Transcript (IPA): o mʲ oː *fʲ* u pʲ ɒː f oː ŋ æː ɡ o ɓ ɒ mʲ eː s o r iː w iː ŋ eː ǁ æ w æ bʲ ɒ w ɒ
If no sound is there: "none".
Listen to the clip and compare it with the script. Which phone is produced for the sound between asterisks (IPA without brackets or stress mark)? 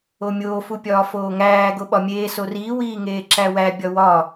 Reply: f